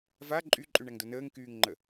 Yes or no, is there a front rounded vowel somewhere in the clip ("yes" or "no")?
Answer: yes